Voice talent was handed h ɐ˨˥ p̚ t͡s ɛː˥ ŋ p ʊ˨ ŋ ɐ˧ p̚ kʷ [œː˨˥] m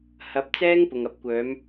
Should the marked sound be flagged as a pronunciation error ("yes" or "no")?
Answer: no